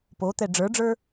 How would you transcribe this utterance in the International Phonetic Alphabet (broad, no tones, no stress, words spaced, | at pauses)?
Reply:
pot̪ɛ ɖ͡ʐə˞ɖ͡ʐə˞